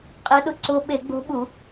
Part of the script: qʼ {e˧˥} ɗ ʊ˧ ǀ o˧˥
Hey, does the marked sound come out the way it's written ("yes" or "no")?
yes